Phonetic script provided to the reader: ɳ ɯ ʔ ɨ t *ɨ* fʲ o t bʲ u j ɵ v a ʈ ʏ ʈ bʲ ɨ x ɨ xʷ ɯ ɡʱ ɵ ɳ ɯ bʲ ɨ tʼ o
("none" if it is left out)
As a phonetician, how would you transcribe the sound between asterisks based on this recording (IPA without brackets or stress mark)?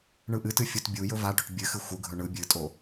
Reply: ɨ